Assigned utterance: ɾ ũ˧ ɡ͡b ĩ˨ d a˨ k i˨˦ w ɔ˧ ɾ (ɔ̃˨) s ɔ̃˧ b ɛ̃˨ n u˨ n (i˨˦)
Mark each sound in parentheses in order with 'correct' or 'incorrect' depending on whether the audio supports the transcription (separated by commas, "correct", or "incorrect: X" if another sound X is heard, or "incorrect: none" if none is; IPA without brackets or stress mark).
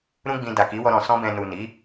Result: correct, correct